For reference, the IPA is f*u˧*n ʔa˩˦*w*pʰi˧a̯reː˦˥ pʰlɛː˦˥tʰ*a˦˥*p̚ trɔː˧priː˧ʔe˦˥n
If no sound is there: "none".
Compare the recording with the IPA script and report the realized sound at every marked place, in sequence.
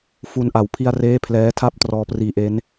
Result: u˧, w, a˥˩

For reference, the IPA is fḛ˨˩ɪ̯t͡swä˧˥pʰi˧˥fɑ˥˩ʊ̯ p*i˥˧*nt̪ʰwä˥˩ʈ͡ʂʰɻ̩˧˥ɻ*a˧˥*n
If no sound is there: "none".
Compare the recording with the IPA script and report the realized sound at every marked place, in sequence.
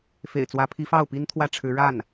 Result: i˥, a˥˩

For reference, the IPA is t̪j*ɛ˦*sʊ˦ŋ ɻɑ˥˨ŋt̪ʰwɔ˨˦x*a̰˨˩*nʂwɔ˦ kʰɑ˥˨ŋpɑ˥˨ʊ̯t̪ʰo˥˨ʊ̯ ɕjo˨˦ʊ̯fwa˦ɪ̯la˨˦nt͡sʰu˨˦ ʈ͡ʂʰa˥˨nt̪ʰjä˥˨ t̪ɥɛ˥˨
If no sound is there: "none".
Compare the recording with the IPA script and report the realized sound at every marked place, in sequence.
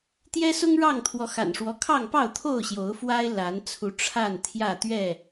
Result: ɛ˦, a̰˨˩

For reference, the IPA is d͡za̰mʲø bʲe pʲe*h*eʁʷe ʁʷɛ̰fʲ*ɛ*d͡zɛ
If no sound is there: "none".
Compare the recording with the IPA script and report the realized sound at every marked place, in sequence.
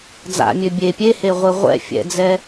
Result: h, ɛ̰

